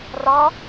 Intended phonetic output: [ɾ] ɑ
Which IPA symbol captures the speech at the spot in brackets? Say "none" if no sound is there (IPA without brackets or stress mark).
r